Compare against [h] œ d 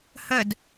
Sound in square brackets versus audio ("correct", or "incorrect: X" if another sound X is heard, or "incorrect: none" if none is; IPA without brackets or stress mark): correct